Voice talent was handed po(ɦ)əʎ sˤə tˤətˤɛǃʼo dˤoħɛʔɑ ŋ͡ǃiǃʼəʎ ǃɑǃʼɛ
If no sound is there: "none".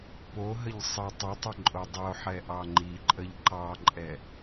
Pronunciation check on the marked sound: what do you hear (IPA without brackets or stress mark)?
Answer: ɦ